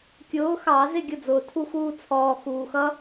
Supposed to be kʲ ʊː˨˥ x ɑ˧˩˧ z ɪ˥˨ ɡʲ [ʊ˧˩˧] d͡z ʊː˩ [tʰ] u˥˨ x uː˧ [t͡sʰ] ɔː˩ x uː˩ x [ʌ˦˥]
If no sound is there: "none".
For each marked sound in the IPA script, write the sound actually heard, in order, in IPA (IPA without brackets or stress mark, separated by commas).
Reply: ʊ˥˨, tʰ, t͡sʰ, ʌ˦˥